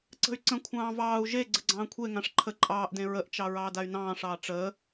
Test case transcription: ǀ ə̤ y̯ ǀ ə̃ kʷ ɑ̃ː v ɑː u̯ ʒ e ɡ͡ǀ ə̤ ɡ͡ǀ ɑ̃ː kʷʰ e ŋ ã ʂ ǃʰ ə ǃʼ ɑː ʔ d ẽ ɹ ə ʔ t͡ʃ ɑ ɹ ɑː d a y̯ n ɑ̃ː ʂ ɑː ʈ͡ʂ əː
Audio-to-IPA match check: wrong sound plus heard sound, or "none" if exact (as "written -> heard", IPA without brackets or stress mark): kʷ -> kʷʰ